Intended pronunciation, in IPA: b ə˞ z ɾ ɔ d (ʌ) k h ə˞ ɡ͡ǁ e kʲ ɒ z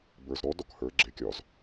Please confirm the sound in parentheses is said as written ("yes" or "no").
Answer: no